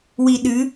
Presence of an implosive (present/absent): present